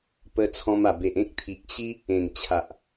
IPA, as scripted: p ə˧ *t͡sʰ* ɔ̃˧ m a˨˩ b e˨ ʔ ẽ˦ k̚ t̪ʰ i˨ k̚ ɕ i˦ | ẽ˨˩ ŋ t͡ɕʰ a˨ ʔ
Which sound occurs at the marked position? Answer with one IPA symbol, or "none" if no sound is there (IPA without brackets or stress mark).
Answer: t͡sʰ